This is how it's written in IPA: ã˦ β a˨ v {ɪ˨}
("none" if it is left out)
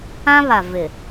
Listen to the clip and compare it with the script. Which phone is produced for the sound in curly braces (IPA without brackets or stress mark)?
ɪ˨